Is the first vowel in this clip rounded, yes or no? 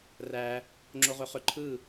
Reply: no